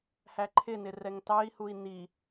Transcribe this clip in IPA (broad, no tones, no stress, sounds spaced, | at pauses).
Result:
h æ ǃʰ ɪ n ɪ r ɛ ŋ t ɑ i̯ h u i̯ n i